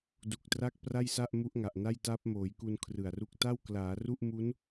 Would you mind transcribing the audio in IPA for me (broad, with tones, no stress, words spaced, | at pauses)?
du˨˩k̚tra˦˥k̚ pra˥˩jsa˥˩ʔ mu˦˥ʔŋa˨˩ʔ na˥˩jta˦˥p̚moː˩˦jku˧n kʰrɯ˨˩a̯ru˦˥k̚ ta˥˩wklaː˩˦ru˥˩ʔ mu˦˥n